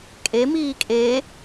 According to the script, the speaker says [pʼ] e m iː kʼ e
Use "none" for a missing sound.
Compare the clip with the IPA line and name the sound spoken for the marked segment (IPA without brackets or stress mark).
kʼ